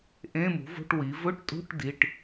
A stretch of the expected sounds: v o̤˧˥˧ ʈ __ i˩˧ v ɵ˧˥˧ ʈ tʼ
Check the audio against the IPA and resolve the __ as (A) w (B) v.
A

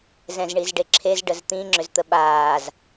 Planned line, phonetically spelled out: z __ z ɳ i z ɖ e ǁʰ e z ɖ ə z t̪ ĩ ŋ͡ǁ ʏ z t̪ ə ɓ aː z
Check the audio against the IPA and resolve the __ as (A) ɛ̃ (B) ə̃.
A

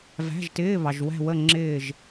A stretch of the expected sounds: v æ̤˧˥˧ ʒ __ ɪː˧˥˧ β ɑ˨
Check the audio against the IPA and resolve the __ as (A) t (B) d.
A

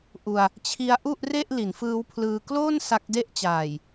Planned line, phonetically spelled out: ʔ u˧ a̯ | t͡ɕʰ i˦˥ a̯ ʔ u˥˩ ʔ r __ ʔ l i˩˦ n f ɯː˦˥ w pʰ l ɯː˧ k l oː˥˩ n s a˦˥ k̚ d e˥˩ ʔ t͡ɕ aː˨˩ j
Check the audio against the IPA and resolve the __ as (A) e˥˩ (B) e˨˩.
A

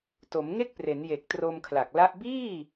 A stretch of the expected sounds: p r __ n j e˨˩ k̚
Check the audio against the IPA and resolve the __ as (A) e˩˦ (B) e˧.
A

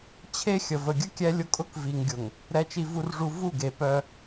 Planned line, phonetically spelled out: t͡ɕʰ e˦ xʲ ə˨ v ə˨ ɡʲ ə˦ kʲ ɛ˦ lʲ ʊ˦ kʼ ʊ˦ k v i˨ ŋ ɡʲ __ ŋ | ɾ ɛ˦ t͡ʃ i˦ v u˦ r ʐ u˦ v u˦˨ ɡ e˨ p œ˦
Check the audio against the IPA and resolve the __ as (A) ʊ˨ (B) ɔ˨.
A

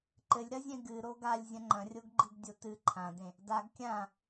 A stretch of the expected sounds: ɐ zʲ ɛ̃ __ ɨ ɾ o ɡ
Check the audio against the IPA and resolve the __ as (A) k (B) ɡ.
B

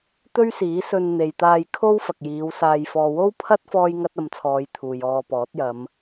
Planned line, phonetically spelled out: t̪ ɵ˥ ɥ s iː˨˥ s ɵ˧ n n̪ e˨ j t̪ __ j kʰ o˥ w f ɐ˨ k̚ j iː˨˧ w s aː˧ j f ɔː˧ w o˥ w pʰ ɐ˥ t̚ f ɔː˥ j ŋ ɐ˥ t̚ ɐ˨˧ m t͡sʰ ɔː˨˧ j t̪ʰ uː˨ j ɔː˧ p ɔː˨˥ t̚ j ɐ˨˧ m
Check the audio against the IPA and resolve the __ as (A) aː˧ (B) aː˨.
A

